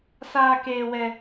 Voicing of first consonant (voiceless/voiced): voiceless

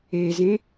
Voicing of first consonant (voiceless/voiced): voiced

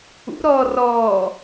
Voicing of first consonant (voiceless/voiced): voiced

